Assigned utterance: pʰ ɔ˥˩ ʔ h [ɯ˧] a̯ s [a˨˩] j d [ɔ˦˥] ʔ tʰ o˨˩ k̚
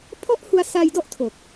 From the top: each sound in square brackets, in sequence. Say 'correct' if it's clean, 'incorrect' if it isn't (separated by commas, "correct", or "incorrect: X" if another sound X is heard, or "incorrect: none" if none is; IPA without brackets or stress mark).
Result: incorrect: u˧, incorrect: a˧, correct